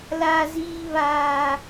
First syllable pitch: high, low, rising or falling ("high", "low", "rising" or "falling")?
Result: high